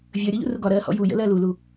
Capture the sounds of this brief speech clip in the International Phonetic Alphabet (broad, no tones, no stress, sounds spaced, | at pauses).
vʲ əː ɾʲ ɔ ʎ ṵ r u ɡ ɒ ɾ ɜː h ɔ̰ j u j ə̰ l ɜ l u l u